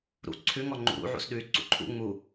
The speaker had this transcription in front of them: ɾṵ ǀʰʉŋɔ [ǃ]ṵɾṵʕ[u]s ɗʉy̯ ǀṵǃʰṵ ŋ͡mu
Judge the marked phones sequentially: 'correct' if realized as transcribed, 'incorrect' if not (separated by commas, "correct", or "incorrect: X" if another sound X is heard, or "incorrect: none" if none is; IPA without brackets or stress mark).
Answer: incorrect: ŋ͡ǃ, incorrect: ṵ